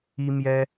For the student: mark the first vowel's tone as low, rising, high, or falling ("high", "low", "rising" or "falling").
high